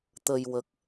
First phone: t̪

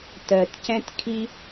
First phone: t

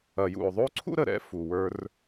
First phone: ɐ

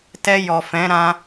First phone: t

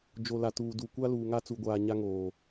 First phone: d͡ʒ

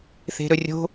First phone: θ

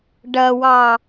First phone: ɖ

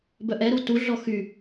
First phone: b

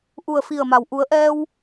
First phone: ʔ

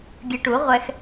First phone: ɡʲ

